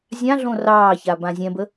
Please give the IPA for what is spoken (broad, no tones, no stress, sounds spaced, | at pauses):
zʲ ã ɮ õ r ɑː ç a b ã zʲ ɛ̃ b ə